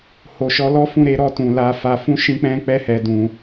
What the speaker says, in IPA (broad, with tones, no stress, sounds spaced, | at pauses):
h o˨ ʃ ɔ˧ l ɔ˦ f ũ˦˨ ɾ e˨˦ ɾ ɔ˧ t ũ˨ l a˧ f a˧ f ũ˦ ʃ ĩ˦ k͡p ɛ̃˦ k͡p ɛ˦ h ɛ˧ d ũ˧